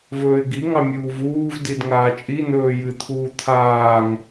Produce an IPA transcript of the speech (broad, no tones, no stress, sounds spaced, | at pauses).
v ɵː ɪ̯ ɡ i ŋ ɑ mʲ uː v uː v d i d ŋ aː t͡ʃʼ i n̪ ɵː j ɨ t̪ʰ uː t̪ʰ aː ŋ